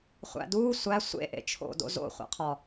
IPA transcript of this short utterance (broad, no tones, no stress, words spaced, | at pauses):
χʷæ̰duː sʷæ sʷḛ ʔḛt͡ʃʰo̰ do̰zo̰ χʷæ̰qʰɒ